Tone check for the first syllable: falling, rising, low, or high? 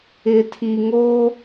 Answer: low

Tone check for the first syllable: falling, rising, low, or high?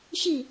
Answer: falling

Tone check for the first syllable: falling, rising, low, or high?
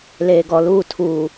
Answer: low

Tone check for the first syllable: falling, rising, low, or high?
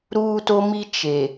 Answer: high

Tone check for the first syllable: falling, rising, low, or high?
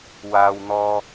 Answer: low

